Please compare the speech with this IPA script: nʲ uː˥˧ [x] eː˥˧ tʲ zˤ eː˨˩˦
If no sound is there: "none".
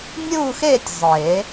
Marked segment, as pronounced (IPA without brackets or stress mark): x